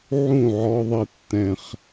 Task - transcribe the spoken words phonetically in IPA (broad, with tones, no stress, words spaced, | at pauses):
ʕũ˦˨ʕɔ˦ðˤi˦tːɛ̃˦χ